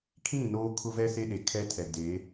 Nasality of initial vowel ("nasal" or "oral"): nasal